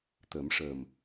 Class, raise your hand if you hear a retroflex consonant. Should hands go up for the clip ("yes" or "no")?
yes